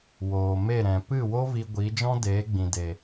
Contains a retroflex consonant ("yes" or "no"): no